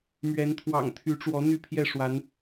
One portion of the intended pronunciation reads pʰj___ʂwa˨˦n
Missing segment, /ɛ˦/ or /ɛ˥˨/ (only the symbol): ɛ˥˨